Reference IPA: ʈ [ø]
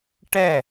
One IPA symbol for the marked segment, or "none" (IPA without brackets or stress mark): ɛ